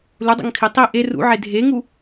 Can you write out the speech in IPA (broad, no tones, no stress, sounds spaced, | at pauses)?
l u dˤ o̰ ŋ kʰ i tˤ i ʔ e r ṵ ʕ e dʱ e ŋ u